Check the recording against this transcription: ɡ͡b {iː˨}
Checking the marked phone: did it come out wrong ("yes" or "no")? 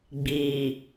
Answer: no